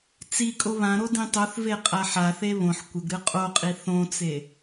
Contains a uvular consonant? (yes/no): yes